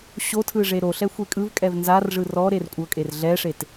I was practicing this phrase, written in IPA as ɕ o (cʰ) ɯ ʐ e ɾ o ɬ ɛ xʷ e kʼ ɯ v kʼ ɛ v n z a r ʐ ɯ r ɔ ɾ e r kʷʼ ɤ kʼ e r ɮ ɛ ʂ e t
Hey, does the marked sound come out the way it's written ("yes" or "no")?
no